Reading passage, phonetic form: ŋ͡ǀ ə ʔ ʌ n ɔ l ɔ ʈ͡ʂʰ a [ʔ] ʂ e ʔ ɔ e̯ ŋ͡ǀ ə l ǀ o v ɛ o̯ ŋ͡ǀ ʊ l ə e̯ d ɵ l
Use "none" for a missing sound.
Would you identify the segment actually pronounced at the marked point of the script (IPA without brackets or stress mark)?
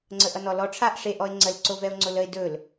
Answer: ʔ